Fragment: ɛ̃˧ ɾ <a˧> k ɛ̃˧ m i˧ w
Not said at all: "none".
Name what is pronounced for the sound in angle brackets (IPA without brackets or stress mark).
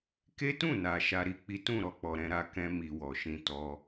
a˧